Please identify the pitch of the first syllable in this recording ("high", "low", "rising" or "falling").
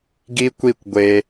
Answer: high